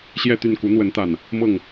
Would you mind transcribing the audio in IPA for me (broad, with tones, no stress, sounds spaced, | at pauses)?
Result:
ɕ j ɛ˥˨ t̪ y˥˨ n k u˨˦ n̪ w ə˨˦ n t̪ a˨˩ n | m ɤ˥˨ ŋ